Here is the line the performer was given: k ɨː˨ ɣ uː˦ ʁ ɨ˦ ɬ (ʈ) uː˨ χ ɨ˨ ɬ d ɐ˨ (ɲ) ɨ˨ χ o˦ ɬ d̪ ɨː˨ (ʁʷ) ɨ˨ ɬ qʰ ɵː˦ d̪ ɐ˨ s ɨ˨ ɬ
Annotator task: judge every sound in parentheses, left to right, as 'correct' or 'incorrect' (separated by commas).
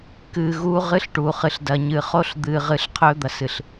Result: correct, correct, incorrect